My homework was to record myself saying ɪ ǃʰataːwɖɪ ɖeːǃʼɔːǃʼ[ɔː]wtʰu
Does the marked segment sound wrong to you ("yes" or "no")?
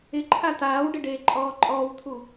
no